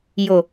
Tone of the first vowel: low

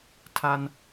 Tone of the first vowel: high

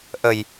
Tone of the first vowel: low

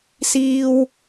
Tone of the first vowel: high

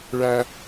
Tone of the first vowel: high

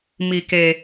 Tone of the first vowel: low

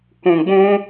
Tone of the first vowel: low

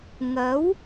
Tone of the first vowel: rising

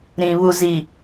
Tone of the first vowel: low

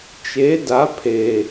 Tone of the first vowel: rising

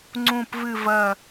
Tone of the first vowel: low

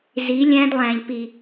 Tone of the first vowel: rising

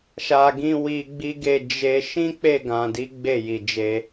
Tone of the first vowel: low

